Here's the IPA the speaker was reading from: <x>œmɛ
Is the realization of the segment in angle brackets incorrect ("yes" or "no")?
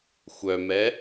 yes